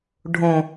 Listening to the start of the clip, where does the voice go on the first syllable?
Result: low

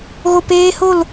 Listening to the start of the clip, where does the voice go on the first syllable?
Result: low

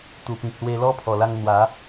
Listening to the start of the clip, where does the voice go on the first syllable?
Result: low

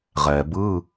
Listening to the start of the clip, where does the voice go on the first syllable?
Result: low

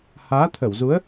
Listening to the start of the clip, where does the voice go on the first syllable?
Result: rising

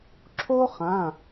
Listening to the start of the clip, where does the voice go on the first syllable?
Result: high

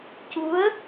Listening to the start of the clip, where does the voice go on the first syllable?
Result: rising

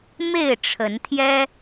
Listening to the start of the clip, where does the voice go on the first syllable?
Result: falling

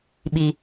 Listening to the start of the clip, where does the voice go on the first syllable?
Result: low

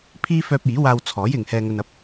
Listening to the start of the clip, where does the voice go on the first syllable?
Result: high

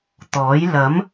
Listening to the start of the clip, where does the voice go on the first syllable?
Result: rising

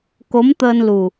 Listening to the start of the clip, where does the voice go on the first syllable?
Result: rising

